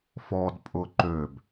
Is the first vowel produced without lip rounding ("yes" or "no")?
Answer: no